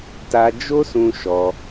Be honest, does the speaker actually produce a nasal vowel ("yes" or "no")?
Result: yes